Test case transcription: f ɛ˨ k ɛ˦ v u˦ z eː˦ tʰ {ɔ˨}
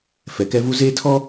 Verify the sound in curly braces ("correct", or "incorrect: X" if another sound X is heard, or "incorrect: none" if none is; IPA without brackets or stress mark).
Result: incorrect: ɔ˦